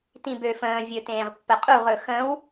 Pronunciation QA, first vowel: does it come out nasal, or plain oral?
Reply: nasal